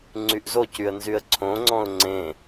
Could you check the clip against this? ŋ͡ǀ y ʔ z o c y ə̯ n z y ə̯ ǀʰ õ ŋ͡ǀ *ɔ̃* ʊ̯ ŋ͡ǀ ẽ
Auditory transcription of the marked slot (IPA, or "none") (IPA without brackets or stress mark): ɔ̃